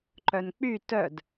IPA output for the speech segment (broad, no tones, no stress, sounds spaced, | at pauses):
ǃ œ n k͡p y t œ d